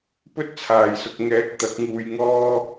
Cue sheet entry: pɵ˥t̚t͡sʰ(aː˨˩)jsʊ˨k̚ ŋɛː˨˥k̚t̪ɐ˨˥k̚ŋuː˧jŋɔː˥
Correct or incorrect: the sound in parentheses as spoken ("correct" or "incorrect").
correct